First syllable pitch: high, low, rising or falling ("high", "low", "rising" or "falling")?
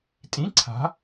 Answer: rising